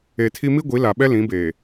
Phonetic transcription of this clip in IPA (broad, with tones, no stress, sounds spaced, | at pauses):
e˨ tʰ i˦ m i˦ ɡʷ i˨˦ l a˨ ɓ ɛ˦ l ĩ˨˦ b eː˨